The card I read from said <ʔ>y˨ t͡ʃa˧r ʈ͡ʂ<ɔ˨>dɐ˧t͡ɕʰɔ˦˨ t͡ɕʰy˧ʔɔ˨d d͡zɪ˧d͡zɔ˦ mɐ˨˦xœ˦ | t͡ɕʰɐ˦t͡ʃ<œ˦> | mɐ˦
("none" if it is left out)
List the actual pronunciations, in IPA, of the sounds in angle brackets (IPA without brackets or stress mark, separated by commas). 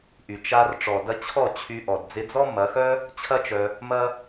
ʔ, ɔ˨, œ˧